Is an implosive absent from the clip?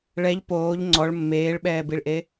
no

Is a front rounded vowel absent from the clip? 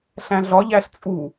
yes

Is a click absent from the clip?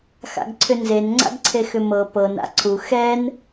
no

